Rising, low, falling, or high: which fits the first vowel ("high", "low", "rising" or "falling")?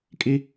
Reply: high